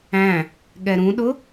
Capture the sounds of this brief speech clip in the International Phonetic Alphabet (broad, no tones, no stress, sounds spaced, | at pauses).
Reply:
æ̃ | ɠ ɛ ɾ ũ ɗ ʊ